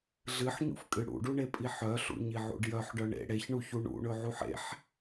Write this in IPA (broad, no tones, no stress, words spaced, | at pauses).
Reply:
ɮɨħɲṵfkʼɨ ɽṵɖuɳepʼi ħœɬṵɲiʕṵɖ jœħɖœ ɳḛ ɽeçɳuçu ɳṵɳɵʕuħ ḛħ